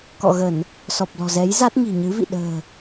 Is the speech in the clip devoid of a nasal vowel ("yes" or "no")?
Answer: yes